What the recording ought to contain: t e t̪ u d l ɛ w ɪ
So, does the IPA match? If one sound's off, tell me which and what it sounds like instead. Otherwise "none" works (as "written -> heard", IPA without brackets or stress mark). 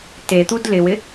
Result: ɛ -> ɪ